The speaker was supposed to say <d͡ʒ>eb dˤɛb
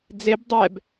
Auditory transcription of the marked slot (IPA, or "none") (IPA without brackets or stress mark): d͡z